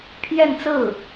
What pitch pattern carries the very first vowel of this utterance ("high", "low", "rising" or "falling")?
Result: falling